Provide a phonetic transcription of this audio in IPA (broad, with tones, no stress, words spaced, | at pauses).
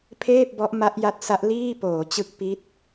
pʰeː˥˩p̚bɔ˦˥ʔ ma˦˥ʔja˦˥t̚sa˦˥ʔ liː˥˩ poː˩˦t͡ɕɯ˦˥k̚ pi˦˥t̚